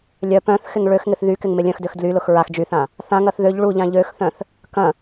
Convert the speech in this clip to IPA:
lʲ œ p œ̃ θ x ɪ ŋ ɭ ø x ŋ ɪ θ ð y k ɪ ŋ m ɪ lʲ œ̃ x d ø x d l y l ʊ x ɹ a x d͡ʒ y θ ã | θ ã ŋ ɐ θ ð ø ʎ ɭ u ʎ ã ʎ ø x θ œ̃ θ | k ɐ̃

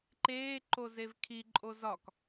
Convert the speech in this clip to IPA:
ǃ eː ǃ o z e v kʰ i ǃʼ o z ɒ k

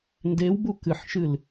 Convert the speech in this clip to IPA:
n d e w b u k ɨ ħ ʃ ɨ l

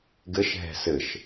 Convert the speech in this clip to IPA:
ɡ ɘ ʃ ɦ ɛ̤ s ɘ ʃ

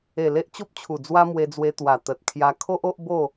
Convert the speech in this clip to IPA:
e˨˩ l e˦ ʔ t͡ɕ o˦ p̚ t͡ɕʰ u˨˩ d͡z w a˦ m w e˧ d͡z w e˧ t̪ w a˨˩ t̪ ə˨ t̚ kʰ j a˧ kʰ o˦ ʔ o˦ ʔ b o˥˧

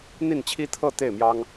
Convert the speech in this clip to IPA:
n̪ i˥˩ n t͡ɕʰ i˥ t̪ʰ ɤ˥˧ t̪ e˥˩ ɪ̯ m j ɑ˥ ŋ

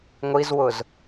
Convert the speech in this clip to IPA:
ŋʷ i z w ʊ z

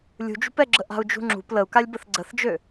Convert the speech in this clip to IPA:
lʲ ṳ d͡ʒ ṳ p ɛ ɡ͡ǁ ə ʔ a̤ u̯ d͡ʒ ṳ ŋ͡ǁ ṳ p l ə u̯ k a lʲ b ə θ ɡ͡ǀ ə θ d͡ʒ ø

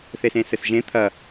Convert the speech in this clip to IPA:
θ e s ẽː s ɘ s ʒ ẽ t̪ʰ ɐ

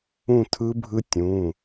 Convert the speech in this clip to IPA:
ũ˥˧ tʰ ɯ˦˥ bʱ ɯ˦˥ tʲ ũ˩˧˩

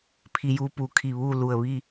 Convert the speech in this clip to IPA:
pʰ i˧ j uː˧ p u˩˧ kʰ i˧˩ ʋ uː˥˨ l u˧˩ ə̯ ʋ i˥˨

